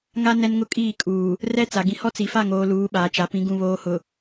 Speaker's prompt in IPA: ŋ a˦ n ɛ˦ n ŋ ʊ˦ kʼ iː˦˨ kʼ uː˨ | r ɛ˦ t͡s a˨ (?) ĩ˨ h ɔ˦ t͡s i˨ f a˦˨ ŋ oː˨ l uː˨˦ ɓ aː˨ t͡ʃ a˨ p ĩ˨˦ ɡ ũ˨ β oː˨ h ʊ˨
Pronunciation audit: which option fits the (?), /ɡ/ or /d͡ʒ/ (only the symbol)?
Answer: ɡ